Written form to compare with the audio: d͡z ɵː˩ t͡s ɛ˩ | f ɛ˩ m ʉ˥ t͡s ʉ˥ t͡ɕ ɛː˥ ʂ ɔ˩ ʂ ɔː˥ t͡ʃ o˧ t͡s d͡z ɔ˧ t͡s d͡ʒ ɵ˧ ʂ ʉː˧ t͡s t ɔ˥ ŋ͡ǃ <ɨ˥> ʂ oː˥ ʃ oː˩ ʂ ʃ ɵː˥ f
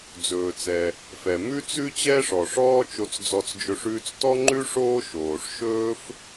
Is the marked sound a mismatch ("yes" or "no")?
yes